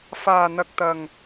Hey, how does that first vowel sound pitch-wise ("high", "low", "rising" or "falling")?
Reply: low